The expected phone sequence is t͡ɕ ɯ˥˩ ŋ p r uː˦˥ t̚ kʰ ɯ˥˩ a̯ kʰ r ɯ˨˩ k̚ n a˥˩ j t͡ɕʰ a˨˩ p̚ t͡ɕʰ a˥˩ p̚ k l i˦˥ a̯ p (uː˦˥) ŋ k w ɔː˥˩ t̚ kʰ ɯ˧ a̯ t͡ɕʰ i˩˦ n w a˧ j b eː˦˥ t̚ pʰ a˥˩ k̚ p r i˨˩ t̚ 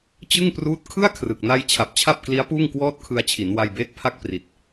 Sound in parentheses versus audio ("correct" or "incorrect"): incorrect